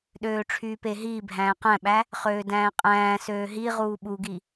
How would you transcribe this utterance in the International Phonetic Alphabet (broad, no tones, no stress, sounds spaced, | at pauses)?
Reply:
ɗ øː ʈ͡ʂʰ yː p e ɦ iː bʱ æ̃ː q æ̃ ɓ æ | χ øː d æ̃ː qʼ æ̃ː s øː ɦ i ʁ uː ɓ u ɡ i